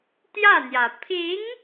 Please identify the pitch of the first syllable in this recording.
falling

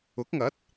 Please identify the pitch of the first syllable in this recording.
rising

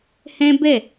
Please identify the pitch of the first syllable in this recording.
high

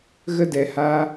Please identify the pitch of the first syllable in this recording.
high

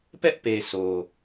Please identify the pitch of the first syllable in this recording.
high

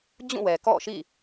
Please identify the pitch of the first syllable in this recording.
falling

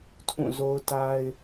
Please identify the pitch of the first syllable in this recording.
falling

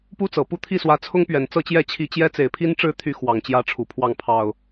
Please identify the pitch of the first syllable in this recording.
high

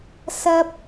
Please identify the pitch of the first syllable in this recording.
high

